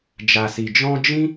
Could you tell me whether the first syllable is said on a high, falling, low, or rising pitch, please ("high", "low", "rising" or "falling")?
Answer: low